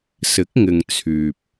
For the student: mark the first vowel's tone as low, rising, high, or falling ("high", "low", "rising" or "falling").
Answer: rising